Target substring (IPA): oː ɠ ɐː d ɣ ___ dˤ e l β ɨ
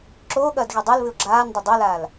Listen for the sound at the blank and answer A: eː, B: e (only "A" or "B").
B